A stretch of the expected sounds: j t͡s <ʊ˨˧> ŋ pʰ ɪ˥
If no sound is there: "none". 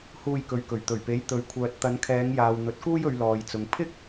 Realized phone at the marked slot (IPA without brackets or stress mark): ʊ˨